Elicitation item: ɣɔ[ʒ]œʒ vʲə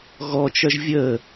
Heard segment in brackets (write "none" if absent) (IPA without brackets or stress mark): t͡ʃ